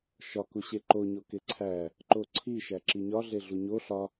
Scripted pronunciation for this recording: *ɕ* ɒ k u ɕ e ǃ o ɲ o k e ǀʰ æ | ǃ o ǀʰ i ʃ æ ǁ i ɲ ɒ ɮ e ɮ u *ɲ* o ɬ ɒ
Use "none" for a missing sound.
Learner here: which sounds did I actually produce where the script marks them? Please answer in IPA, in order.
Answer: ʃ, ɲ

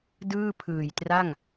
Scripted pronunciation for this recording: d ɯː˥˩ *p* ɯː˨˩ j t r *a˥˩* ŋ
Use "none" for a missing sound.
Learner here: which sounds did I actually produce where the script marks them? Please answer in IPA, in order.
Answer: pʰ, a˥˩

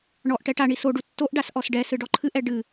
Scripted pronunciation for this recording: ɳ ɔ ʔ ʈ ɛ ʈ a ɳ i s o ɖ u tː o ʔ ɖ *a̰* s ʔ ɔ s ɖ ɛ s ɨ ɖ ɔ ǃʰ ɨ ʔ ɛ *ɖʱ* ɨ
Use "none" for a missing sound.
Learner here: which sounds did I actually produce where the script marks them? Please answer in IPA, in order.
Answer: a, ɖ

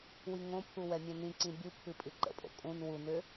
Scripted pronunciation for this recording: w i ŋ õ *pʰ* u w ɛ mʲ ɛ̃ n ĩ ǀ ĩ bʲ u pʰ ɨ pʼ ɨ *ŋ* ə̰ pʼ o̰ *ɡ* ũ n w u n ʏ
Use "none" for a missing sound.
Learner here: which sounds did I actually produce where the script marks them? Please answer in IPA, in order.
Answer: pʰ, ǃ, kʼ

